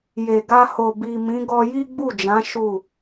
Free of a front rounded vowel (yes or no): yes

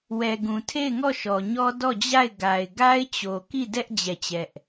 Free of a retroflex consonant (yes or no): yes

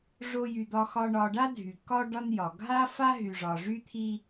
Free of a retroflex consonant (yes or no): no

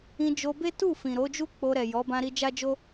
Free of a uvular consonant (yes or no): yes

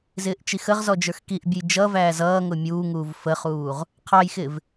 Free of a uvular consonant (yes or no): no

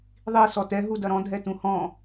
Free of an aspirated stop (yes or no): yes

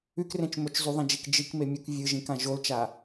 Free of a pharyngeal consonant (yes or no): yes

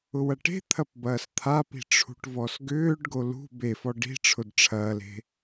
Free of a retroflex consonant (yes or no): no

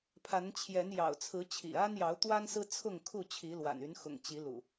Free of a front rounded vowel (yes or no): no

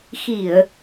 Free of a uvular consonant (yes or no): yes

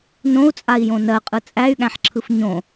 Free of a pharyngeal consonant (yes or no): no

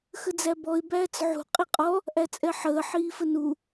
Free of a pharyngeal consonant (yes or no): no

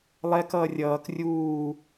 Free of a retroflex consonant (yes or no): yes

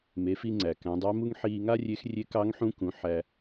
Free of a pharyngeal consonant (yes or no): no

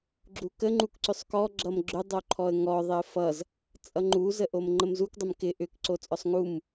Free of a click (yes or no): no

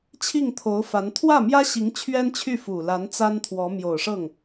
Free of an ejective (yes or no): yes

